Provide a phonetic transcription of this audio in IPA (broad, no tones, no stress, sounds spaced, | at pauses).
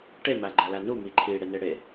ʈ e m æ ɡ͡ǃ æ l æ n u m i ǃʰ i ɽ e n e ɽ e